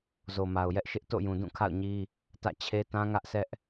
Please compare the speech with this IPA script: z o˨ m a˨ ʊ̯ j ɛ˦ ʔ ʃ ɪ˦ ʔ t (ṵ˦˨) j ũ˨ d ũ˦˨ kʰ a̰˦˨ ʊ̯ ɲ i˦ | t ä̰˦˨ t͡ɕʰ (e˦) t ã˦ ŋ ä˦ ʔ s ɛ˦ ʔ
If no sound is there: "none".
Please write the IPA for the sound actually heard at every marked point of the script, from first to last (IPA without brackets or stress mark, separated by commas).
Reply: o̰˦˨, e˦